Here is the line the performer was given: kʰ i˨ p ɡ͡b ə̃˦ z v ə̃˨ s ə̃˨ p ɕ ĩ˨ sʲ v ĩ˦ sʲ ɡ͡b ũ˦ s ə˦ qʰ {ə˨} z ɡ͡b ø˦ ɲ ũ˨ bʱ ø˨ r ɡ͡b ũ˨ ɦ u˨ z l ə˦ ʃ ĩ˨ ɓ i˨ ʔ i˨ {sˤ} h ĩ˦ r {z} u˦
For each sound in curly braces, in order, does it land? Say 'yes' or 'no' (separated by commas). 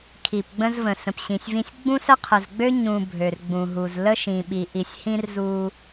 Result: yes, no, yes